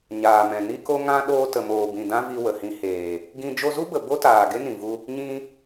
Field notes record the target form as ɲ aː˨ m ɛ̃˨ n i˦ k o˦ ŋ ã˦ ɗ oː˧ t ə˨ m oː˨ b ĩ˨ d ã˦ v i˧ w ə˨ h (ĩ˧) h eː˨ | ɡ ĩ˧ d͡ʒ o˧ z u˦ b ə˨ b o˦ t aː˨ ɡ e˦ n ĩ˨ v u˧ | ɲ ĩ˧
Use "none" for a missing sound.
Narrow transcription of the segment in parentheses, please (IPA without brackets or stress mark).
ĩ˧